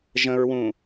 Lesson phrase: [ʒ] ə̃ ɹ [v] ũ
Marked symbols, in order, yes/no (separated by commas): yes, no